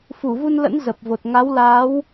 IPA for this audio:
f u˧˩ v u˧ n l ə̰˧˥ n z ə˨˩ p̚ v o˨˩ t̚ ŋ a˨˦ w l aː˨˦ w

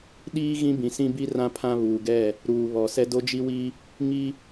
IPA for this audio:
ɗ iː˦ ɣ ĩ˦ b ĩ˨ s ĩ˦ b i˦ r ã˦ pʰ ã˦ β uː˨ ɡ ɛ˦˨ | ɾ uː˨ β ɔ˨ s ɛ˦ d o˦ d͡ʒ i˦ w i˦ | ŋ i˦

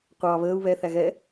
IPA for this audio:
qʷ ɑ β əː u̯ β ɛ θ æ ɣ ɛ

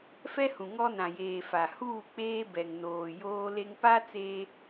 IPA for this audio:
f ɛ˦ h ũ˨ ŋ ɔ˦ n ã˨ j eː˨ f a˨ h uː˦˨ k͡p eː˦ b ɛ˨ ŋ n oː˨ j oː˦ l e˦ ŋ p a˦ t͡s eː˦

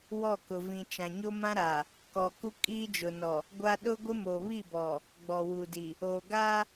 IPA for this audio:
w ɔ˦˨ k ʊ˨ v ĩ˨ t͡ʃ ã˨ ɲ o˦ m ã˦ ɾ aː˨ | k ɔ˨ k u˦ kʼ iː˦ d͡ʒ ʊ˨ n ɔ˨ | ɡʷ a˦ ɗ ʊ˦ ɡʷ ɪ˦ m o˨ β i˦˨ b ɔ˨ | ɡ͡b ɔ˨ w u˨ d i˨ | oː˨ ɡ aː˦

